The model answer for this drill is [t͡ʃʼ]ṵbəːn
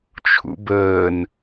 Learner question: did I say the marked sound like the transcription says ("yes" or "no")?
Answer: no